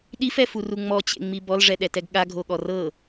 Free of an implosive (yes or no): no